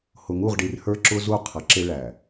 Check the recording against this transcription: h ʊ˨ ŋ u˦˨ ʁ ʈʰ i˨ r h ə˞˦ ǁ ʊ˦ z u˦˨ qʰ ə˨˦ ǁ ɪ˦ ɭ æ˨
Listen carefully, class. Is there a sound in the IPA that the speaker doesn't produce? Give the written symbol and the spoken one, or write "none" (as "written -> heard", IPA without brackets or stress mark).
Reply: ʈʰ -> ɖ